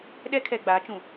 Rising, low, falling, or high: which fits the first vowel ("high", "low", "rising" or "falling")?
high